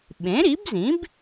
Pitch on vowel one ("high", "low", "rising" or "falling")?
rising